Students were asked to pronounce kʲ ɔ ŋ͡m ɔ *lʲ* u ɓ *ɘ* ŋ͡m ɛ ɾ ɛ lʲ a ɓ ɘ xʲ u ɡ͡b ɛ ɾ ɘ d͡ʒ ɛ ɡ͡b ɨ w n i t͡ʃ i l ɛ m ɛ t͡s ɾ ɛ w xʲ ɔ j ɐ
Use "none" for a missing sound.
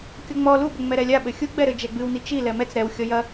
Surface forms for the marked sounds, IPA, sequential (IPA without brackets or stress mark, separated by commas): l, ɘ